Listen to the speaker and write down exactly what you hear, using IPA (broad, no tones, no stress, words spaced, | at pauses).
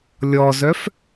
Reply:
lʲɔzœf